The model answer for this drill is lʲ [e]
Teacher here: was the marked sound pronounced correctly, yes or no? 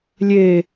yes